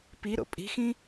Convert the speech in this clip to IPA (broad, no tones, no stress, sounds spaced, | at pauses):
p i ɾ o̰ pʼ i̤ x ĩ